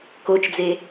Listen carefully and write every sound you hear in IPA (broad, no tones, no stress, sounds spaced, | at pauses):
k o t͡ʃ d͡z e